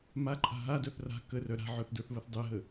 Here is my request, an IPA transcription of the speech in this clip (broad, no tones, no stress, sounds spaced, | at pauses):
m a ǃʼ a̤ ɦ a d œ θ r a̤ k ə r œ ɾ a̤ ʕ œ θ d ə˞ θ β ə θ dˤ ɛ ɦ ə